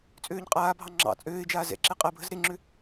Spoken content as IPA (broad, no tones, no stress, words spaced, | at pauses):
t͡sʼøːɲqʼaːbʱɑ ŋ͡ǁɑ̰ t͡sʼøːɪ̯d͡ʒaː zɛ̰ǁe qʼɜbʱəz ɾeŋ͡ǁø